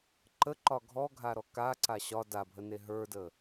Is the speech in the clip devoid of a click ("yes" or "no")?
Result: no